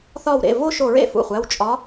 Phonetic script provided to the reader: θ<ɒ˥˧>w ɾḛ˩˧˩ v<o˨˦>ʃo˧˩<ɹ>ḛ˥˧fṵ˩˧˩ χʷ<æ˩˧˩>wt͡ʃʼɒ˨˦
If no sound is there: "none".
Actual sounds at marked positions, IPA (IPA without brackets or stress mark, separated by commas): ɒ˧˩, o˥˧, ɹ, æ˩˧˩